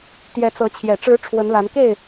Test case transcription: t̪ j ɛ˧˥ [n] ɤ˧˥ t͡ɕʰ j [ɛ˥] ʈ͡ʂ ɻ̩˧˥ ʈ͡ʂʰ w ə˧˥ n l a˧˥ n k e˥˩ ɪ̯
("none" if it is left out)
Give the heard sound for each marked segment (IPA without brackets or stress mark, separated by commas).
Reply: t͡s, ɛ˨˩